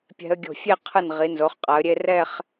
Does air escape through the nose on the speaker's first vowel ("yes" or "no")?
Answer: no